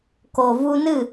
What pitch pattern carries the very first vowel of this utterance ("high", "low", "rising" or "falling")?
low